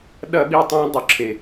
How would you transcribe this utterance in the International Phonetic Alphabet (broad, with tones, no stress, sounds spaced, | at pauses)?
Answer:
ɗ ɐ˦˨ ɓ i˦˨ tˤ ã˦ dˤ ɵ˦˨ ǁʰ e˨